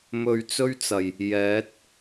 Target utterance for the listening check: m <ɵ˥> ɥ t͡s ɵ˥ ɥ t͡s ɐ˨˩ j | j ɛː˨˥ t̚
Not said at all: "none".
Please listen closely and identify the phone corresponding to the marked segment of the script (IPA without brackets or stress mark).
ɵ˧